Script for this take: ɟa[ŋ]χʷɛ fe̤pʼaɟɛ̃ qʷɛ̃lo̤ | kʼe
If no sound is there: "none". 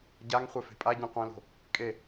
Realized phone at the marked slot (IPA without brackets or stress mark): ŋ